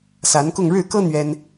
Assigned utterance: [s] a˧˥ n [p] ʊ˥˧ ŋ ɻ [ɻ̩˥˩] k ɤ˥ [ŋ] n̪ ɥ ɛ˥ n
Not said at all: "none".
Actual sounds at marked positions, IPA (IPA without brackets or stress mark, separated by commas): s, k, ɻ̩˥˩, none